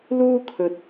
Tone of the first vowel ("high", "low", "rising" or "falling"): high